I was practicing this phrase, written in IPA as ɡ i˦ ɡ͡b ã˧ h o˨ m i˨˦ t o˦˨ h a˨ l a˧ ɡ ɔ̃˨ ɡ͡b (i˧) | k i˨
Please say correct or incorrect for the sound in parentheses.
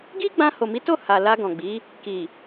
incorrect